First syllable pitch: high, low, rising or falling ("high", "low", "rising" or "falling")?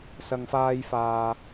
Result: low